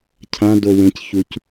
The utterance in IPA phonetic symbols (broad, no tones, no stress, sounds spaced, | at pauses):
cʰ ã d o w ẽ c ç u c